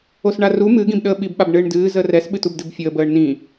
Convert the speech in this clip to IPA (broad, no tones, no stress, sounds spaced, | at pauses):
o s ɳ a r u m ɨ ɡ ĩ b ɗ əː ɓ i b ɓ a b ɳ ɨː ɳ d ɨː z əː r ɛ s ɓ ɨ t u b d ɨ b fʲ əː b əː ɳ n ĩ